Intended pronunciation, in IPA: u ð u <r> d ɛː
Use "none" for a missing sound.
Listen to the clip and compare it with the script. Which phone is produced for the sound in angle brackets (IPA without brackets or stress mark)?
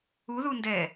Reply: n